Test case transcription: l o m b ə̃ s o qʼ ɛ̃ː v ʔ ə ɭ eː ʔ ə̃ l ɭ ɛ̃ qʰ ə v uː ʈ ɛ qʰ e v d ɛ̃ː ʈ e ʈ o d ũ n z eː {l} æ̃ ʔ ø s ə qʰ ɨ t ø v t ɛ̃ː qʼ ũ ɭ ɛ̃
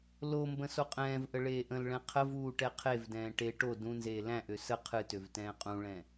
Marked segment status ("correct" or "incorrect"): correct